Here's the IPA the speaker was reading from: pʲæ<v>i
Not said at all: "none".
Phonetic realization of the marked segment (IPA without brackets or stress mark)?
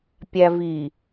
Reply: v